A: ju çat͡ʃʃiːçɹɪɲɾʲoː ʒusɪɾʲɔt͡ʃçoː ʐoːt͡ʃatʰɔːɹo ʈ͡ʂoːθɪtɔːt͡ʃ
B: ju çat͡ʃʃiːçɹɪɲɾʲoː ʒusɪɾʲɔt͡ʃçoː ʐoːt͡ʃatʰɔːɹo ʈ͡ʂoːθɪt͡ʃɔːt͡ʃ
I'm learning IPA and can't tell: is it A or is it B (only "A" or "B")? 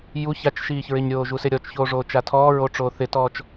A